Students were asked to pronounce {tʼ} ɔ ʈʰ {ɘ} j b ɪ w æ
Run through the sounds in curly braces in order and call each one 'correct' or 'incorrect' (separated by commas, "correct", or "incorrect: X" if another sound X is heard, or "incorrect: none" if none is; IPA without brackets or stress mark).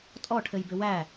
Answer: correct, correct